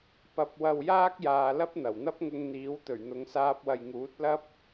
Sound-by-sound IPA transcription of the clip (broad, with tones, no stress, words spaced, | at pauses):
pɐ˧p̚wɐ˧wjaː˥k̚jaː˨ lɐ˥p̚n̪ɐ˨˩wn̪ɐ˥p̚ŋʊ˧ŋ n̪iː˨˥wt̪ɵ˨˩ɥn̪ʊ˨ŋsaː˧p̚ wɐ˨jŋuː˨˥t̚ lɐ˥p̚